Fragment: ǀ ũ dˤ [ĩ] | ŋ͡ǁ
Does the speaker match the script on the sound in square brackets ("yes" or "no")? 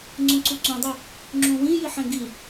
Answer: no